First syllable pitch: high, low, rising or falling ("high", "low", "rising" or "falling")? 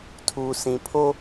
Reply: low